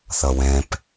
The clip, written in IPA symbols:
θ ʌ w ɛ̃ p

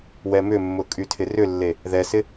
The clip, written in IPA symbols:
w ɛ m ʏ mː ʊ kʼ y tʰ ɪ r ʏ lː e | ð ɛ s ɪ

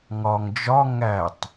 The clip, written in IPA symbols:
ŋ ɒ ŋ d͡ʒ ɒ ŋ æ tˤ

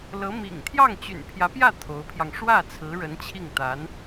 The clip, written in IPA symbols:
l ɤ˧˥ m ḭ˨˩ ŋ t̪ʰ j ɑ˥˩ ŋ t͡ɕ y̰˨˩ n pʰ j ä˧˥ p j ä˥˩ t̪ʰ o˧˥ ʊ̯ pʰ j ɑ˧ ŋ ʂ w ä˥˩ t͡sʰ ɹ̩˧˥ ɻ ə˧˥ n t͡ɕʰ i˥˩ ŋ t̪ a˧˥ n

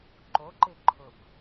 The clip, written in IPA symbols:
ǃ o ǃ ɪ ǃʰ ʊ b

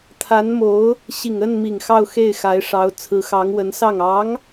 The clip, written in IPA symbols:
t̪ʰ a˧˥ n m o˧˥ ʊ̯ | ɕ i˨˩ ŋ ə˥˩ n m i˨˩ ŋ x ɑ˥˧ ʊ̯ x e˥˩ ɪ̯ x a˧˥ ɪ̯ ʂ ɑ˧˥ ʊ̯ t͡sʰ ɹ̩˧˥ x ɑ˧˥ ŋ w ə˧˥ n s ɑ˥˩ ŋ ɑ˧˥ ŋ

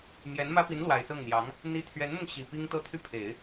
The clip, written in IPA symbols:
m j ɛ˧˥ n m ä˥ p i˧˥ n l w a˨˩ ɪ̯ s ɤ˥˩ ŋ n̪ j ɑ˧˥ ŋ | n̪ i˥˩ t̪ʰ ɥ ɛ˧˥ n m ʊ˧ ŋ ɕ i˨˩ p i˥ ŋ t̪ ɤ˥ t̪ʰ y˥˩ pʰ e˨˩˦ ɪ̯

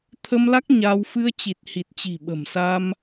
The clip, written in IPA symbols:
t̪ʰ ə˧ m l a˦˥ k̚ ɲ a˧ w f ɨ˧ ə̯ t͡ɕ i˨˩ t̚ h i˨˩ t̚ t͡ɕ i̤˨˩ ɓ ə̤˨˩ m s a˧ m

